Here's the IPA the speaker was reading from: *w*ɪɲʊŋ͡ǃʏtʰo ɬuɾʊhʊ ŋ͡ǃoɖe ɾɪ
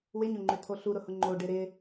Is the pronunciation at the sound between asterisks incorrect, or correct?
correct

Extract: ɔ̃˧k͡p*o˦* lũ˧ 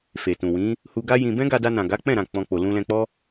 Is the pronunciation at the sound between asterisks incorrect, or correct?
incorrect: o˨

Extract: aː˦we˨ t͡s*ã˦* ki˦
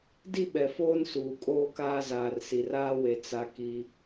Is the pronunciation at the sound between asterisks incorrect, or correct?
incorrect: a˦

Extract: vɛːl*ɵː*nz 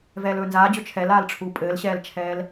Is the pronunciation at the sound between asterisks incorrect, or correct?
correct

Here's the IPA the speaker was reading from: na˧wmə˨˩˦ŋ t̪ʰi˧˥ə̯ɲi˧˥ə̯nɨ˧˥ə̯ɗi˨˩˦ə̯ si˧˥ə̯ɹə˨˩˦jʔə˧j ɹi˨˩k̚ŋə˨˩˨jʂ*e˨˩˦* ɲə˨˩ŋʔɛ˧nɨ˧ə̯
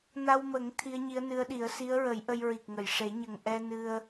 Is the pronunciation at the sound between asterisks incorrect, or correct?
correct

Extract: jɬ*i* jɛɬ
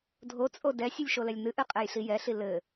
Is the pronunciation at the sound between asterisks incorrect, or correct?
correct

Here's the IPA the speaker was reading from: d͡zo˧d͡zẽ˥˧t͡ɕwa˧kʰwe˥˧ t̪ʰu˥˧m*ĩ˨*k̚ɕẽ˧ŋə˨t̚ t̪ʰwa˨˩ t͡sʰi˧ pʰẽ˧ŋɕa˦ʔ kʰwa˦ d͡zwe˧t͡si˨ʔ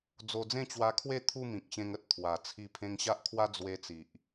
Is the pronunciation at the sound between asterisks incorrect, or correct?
correct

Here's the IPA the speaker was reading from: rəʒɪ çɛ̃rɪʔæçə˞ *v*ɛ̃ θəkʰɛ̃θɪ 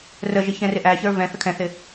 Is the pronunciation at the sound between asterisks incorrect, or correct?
correct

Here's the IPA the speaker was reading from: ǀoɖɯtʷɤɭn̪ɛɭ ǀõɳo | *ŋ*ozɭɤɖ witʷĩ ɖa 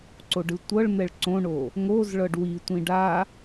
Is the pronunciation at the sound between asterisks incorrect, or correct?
correct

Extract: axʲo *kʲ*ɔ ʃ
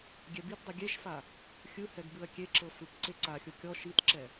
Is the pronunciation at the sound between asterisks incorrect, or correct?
correct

